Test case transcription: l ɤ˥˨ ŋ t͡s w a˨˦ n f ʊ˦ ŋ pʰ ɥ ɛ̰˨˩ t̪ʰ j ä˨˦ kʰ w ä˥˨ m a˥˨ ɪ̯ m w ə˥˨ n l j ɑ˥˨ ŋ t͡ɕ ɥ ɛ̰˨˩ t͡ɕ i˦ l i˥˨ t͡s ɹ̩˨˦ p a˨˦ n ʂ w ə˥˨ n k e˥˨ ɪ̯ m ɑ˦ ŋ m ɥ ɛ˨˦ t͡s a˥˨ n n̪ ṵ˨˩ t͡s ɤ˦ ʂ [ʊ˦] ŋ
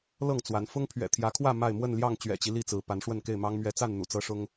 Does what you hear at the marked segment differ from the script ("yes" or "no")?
no